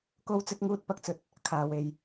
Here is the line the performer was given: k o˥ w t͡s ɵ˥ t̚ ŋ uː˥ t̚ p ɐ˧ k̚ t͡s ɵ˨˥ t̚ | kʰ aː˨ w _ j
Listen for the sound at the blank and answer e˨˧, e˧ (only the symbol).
e˨˧